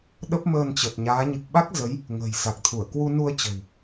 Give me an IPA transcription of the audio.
ɗə˦˥p̚məː˧nt͡ɕə˨˩t̚ɲaː˨˦ ɲɨ˨˩k̚ɓa˦˥k̚ zə˨˦j | ŋə̤ː˨˩j sa˨˩k̚t̪ʰu˧˩ə̯ kwu˧nu˧ə̯t͡ɕə̤˨˩w

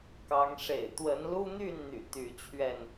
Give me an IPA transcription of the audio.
kɑ˨˦ŋ ʂḛ˨˩ɪ̯ t̪wə˨˦nlu˦n̪y˥˨nn̪y̰˨˩ t̪y˨˦t͡ɕʰɥɛ˥˨n

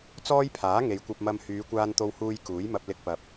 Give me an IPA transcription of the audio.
t͡sɔː˥jpʰaː˨˥ ŋe˨jkʷɐ˧p̚mɐ˧m hyː˨˧kʷaː˧nt̪o˧whuː˧j kuː˨˥jmɐ˧p̚ lɪ˧k̚pɐ˨p̚

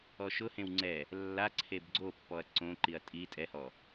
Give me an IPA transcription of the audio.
ɔʃʊhẽw ŋ͡ǀɛ | lːa ǀʰebɡ͡ǀopːɔɐ̯ ǀõǃiɐ̯ tʼi tʼɛhɔ

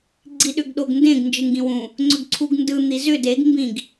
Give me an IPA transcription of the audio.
ɡ͡ǀiɗʏɡɗoɡndẽɡ nd͡ʒɯŋɡĩwũ | ŋ͡ǀʏɡǀʰuɡndɯ n̪izʏ deɡ mbĩɡ

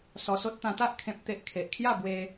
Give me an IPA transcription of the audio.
sɔ˧so˦t̚ t̪ã˧t̪a˦ʔ kʰẽ˦p̚t̪e˦ʔ kʰe˨ʔkʰja˥˧bwe˧

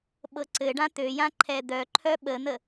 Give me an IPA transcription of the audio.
ɓɤǀɘɖã t̪øjã ǃʰɛd̪œǃʰœ ɓən̪ə

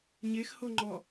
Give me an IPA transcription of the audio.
ɲex hoŋ͡ǃɔ

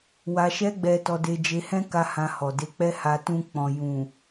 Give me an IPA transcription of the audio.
wa˧ʃɛ˦ɡ͡bɛ˧ tɔ˧de˧ d͡ʒe˧hɛ̃˦ka˧ hã˧hɔ˨de˧ k͡pɛ˦ha˧ tũ˧k͡pɔ̃˨ jũ˨

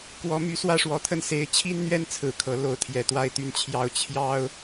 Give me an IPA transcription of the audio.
kwɔ˧˥my˧˥ swä˥˩ʂwɔ˧˥t̪ʰə˥˩n se˧˥ɪ̯t͡ɕʰi˥n n̪ɥɛ˥˩nt͡sʰɹ̩˨˩ kʰɤ˧˥lo˥˩ʊ̯t̪ʰjɛ˧˥ t̪wa˥˧ɪ̯t̪y˥˧n t͡ɕʰjɑ˥˩ʊ̯ t͡ɕʰjɑ˥ʊ̯

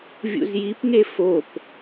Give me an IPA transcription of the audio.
vʲṵzjipŋe fop

